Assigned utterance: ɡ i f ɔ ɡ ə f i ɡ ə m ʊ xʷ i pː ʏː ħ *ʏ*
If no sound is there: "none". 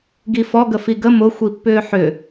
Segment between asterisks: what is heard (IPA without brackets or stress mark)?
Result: ʏ